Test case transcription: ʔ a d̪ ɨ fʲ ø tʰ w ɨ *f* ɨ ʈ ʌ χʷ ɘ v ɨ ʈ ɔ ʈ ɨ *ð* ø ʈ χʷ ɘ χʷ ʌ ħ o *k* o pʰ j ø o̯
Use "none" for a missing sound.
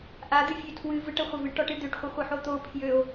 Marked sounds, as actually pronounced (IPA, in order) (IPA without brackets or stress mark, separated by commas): v, d̪, t̪